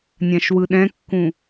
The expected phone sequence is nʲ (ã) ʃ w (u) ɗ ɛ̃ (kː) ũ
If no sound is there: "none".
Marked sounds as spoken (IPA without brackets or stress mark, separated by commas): ã, ɯ, kː